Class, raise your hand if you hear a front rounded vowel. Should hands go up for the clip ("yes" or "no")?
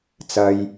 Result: no